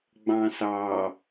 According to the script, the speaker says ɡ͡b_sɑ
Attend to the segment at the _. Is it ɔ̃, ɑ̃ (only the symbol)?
ɑ̃